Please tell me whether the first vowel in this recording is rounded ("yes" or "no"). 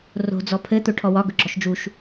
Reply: yes